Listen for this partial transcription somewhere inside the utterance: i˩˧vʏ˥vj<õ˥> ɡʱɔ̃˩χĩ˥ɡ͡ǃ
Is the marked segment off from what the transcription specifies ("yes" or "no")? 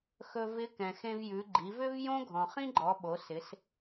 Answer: no